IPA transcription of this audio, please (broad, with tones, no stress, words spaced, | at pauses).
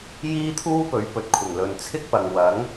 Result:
jiː˥t̪ʰuː˥ pɵ˨˥ɥpɵ˨t̚kʷʰɪ˨˩ŋ lɵ˨nt͡sʰɪ˥k̚pɐ˨ŋ wɐ˨˥ŋ